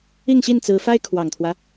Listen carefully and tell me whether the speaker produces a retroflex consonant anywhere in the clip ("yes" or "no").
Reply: no